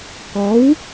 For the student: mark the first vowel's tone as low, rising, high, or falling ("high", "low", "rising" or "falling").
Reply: rising